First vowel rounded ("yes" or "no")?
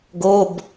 yes